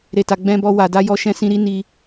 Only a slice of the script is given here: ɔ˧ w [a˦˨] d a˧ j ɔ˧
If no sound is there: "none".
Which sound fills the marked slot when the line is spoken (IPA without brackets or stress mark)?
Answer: a˨